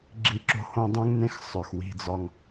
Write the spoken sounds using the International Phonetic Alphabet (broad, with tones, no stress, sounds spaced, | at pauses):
ɡ͡ǁ i˦ ǁ o̤˦ h õ˦ dˤ ũ˦ ŋ n ẽ˦ x sˤ œ˨ x w i̤˦˨ d͡z ɒ˦ ŋ